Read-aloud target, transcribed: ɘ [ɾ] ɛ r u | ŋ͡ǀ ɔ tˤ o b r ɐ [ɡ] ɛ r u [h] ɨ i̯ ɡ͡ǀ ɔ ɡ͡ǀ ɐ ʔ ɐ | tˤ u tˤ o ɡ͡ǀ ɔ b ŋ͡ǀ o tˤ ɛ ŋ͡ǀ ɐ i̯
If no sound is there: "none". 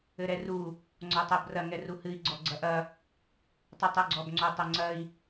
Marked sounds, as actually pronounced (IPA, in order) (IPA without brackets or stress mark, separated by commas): ɾ, ŋ, h